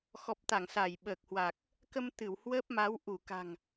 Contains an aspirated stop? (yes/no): no